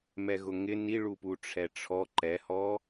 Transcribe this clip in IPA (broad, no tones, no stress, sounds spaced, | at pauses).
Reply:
m ɛ ɣ ʊ ŋ ɪ n i ɭ u p u ʈ͡ʂʰ ɛ ʈ͡ʂʰ ɔ ǃ ɛ h ɔ